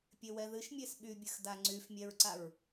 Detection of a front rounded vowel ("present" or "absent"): present